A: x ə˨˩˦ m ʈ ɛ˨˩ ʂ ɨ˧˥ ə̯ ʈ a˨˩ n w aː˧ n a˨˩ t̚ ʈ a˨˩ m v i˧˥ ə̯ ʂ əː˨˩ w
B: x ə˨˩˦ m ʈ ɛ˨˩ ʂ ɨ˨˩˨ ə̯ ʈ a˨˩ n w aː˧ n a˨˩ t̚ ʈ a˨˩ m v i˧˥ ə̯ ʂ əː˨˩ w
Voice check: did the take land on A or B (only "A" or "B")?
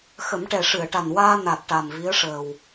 B